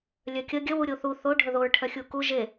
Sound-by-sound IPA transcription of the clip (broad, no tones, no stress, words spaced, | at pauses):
lʲœkʲə ɡʲə wuɾʲoθu θo ɖʱəðoɹ ʈʰœxʲuku ʒe